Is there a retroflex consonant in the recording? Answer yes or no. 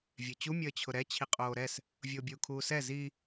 no